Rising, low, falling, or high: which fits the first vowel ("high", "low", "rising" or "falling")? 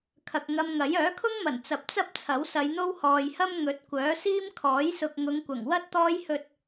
low